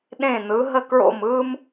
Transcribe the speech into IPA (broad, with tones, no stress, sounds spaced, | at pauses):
ɗ ẽ˥˨ n ɯ˨˥ ɦ ə˥˨ k ɹ o̰˥˨ m ɯː˥ m